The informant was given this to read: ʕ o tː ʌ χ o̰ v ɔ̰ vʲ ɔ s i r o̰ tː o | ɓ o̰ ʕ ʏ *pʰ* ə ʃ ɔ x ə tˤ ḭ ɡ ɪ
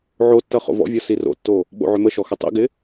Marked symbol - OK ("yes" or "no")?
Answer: no